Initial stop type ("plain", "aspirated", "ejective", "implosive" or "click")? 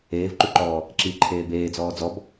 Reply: click